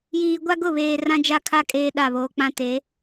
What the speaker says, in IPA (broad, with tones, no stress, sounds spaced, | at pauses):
j iː˨ ɡʷ a˦ ɡ ʊ˦˨ β eː˨ r ã˦ d͡ʒ a˦ kʰ a˦ kʼ eː˦ ɗ a˦˨ β oː˨ k͡p ã˦ t e˨˦